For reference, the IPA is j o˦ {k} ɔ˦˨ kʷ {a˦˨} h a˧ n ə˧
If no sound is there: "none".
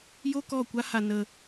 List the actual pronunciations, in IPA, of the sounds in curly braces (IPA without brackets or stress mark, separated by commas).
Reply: k, a˦